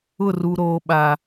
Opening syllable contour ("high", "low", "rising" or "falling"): falling